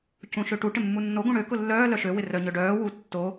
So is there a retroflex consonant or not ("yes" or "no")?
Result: yes